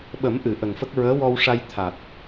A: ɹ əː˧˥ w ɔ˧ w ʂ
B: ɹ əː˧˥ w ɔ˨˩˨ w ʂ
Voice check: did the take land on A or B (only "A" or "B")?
A